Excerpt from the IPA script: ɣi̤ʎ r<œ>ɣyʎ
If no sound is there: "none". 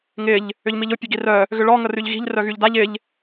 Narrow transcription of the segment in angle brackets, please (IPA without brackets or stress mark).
œ